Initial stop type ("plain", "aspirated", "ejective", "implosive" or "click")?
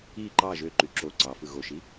click